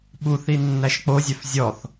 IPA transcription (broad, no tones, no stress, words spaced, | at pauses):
ɓuθi nːæʃk͡pozʲœf zʲɔθ